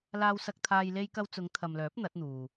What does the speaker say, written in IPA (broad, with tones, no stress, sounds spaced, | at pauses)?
l aː˧ w s ɐ˧ k̚ t̪ʰ aː˧ j l e˧ j k ɐ˧ w t͡s ʊ˨˧ ŋ t̪ʰ ɐ˨ m l œː˨˥ p̚ n̪ ɐ˨˥ t̚ n̪ uː˨